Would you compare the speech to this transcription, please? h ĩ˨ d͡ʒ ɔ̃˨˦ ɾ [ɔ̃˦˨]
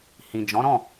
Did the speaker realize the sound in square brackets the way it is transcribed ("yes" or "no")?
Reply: yes